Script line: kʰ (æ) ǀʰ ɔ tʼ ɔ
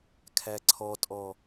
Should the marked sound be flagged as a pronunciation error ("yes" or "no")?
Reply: no